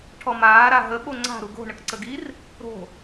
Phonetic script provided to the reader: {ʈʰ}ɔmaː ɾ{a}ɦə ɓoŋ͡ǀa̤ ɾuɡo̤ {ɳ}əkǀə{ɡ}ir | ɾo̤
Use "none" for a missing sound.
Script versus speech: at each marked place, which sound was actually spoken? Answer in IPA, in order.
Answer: ʈʰ, a, ɳ, ɡ

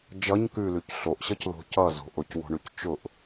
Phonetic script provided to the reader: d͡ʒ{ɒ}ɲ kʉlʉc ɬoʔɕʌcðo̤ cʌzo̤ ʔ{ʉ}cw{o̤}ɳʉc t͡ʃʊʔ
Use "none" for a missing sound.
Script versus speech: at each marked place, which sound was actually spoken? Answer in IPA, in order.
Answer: ʌ, ʊ, o̤

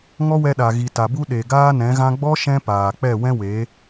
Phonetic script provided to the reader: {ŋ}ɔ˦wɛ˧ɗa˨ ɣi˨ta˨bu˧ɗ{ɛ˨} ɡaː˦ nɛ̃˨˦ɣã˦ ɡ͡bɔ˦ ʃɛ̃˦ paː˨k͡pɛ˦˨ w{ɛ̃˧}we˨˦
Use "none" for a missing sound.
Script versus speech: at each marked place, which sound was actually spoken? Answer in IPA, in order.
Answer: ŋ, e˨, ɛ̃˦

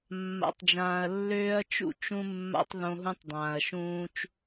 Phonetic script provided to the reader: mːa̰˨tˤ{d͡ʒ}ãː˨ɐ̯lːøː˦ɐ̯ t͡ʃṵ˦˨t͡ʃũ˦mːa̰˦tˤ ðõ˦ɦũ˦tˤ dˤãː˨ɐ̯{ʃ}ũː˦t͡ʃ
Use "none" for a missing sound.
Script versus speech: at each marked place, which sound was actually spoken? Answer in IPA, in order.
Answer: d͡ʒ, ʃ

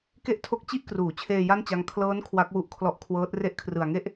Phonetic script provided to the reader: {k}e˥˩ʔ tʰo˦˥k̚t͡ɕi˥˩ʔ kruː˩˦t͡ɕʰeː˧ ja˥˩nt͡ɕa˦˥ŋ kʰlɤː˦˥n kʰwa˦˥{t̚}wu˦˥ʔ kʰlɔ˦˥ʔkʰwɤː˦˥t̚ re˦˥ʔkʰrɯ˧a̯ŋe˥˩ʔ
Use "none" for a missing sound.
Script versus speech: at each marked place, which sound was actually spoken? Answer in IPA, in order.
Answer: k, k̚

